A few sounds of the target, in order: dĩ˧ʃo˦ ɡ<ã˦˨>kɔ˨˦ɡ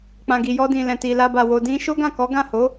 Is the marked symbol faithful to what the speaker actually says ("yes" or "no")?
yes